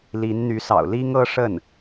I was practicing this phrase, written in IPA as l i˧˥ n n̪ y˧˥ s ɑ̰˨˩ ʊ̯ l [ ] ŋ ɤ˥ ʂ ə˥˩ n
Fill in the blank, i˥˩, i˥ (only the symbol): i˥